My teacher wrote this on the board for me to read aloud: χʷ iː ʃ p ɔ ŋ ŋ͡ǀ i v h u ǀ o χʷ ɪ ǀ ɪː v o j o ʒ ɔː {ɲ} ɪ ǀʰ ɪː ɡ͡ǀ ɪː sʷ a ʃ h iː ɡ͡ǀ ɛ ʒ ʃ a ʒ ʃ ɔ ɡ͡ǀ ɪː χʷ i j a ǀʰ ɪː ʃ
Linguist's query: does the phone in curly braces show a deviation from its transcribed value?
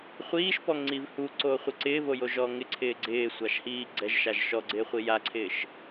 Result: yes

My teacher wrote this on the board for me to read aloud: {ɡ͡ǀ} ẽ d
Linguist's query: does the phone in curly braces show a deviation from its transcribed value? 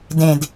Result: yes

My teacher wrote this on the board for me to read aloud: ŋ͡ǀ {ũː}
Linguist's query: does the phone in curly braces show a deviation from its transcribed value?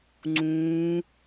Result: no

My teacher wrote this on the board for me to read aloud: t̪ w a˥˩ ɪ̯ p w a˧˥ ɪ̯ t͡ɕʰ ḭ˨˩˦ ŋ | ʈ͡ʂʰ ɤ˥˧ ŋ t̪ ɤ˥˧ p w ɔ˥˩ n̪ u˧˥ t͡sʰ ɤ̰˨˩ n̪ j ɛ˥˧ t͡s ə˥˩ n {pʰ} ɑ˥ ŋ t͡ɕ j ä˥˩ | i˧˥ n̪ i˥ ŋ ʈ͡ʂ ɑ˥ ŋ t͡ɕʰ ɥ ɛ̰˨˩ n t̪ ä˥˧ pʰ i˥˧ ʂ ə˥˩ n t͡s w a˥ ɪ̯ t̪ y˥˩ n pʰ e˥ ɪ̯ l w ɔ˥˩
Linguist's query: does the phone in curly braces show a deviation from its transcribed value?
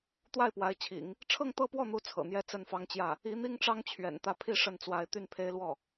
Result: yes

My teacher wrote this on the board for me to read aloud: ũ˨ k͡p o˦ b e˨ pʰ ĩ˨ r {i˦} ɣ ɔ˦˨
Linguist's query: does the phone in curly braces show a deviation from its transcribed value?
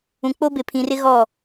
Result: yes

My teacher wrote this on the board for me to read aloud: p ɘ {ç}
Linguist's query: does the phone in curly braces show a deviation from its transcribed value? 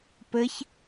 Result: no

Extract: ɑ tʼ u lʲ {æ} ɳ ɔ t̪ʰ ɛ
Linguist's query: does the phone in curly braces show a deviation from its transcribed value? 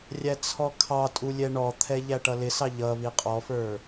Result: yes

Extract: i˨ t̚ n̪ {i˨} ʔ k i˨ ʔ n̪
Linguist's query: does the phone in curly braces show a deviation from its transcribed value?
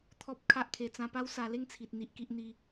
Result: no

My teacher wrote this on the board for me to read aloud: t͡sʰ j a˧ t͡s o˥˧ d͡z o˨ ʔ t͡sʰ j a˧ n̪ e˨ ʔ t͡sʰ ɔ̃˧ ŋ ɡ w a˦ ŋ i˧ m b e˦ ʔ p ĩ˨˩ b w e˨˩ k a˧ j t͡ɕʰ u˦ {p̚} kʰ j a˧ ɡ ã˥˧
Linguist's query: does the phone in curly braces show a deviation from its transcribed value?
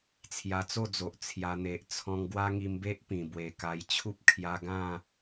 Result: no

